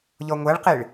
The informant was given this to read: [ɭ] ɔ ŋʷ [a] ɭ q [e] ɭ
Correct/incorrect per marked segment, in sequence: incorrect, correct, correct

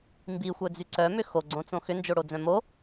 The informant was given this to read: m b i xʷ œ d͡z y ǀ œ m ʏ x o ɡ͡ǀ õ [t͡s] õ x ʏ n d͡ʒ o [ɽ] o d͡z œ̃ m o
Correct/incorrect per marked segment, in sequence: correct, correct

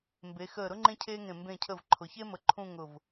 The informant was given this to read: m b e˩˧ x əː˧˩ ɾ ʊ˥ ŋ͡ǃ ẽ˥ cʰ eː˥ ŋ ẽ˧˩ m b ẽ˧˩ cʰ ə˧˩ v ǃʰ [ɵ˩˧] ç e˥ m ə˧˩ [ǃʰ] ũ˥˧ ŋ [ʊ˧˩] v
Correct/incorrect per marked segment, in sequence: incorrect, correct, correct

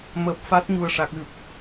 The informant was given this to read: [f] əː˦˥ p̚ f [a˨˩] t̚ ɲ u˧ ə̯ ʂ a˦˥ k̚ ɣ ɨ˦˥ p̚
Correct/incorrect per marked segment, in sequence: incorrect, incorrect

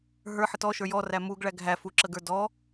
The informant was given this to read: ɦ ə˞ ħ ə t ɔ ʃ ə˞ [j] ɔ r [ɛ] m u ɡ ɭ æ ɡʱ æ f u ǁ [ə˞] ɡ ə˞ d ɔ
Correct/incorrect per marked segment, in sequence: correct, incorrect, incorrect

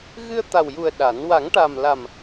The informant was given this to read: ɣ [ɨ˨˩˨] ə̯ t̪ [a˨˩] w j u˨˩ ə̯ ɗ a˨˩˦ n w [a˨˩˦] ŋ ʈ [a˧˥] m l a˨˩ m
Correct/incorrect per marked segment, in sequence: incorrect, correct, correct, incorrect

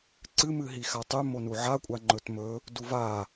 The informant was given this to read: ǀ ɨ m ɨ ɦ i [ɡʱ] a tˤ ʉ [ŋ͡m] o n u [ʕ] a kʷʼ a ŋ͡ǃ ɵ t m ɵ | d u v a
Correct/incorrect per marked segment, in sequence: incorrect, incorrect, correct

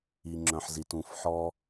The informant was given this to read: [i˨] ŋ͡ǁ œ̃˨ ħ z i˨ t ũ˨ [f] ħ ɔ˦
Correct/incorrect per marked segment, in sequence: correct, correct

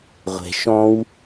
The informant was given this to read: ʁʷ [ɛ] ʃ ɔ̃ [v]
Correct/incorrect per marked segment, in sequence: incorrect, incorrect

